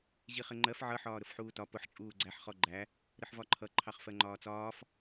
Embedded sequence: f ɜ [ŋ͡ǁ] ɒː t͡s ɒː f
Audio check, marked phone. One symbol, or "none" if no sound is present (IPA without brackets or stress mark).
ŋ͡ǃ